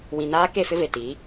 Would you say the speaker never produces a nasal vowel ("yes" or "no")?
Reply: no